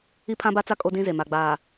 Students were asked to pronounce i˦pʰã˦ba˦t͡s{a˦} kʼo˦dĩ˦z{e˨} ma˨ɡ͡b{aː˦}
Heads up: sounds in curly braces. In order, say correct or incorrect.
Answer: correct, correct, incorrect: aː˨

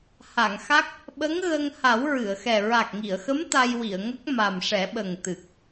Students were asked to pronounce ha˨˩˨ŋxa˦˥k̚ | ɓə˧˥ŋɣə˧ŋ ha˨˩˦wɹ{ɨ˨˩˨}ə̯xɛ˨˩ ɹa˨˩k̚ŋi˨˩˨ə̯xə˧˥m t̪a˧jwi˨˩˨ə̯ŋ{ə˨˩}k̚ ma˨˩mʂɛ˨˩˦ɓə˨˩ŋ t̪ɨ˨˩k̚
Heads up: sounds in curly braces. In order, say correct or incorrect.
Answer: correct, incorrect: ə˦˥

